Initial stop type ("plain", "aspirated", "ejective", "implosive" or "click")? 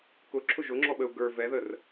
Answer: plain